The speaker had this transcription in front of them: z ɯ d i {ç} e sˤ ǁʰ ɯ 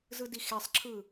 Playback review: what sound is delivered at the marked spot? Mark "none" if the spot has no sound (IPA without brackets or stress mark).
x